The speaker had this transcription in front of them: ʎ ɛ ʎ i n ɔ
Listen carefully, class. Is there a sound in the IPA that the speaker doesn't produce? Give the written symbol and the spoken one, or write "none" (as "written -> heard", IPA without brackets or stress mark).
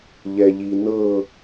ɔ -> ɤ